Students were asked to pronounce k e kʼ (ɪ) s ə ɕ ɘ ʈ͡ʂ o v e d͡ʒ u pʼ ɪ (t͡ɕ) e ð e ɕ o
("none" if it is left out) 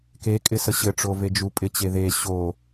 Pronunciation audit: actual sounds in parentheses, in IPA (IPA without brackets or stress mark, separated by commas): ɪ, t͡ɕ